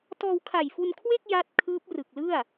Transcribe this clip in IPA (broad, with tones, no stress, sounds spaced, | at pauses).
t ɔː˧ w kʰ a˨˩ j f u˧ n kʰ w e˥˩ k̚ j a˦˥ t̚ kʰ ɯː˦˥ p̚ r ɯ˨˩ k̚ l ɯ˥˩ a̯